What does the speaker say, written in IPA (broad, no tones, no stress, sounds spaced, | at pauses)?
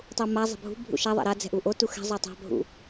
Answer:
tˤ u m a zˤ ɛ̤ bʱ ṳ bʱ ṵ ʃ a ðˤ a̰ ɾ a d͡z ɛ̤ ʔ u ʔ o t u x ɛ̤ zˤ o tˤ a̤ bʱ ṵ